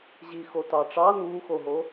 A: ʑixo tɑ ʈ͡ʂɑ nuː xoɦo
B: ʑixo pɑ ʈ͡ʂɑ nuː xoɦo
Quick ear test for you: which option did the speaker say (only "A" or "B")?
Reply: A